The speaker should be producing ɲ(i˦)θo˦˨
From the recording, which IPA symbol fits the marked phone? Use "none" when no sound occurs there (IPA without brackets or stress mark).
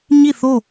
i˦˨